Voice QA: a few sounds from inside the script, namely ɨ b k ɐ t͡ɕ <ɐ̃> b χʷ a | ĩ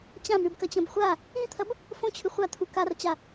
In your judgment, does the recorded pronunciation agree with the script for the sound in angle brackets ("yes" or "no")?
yes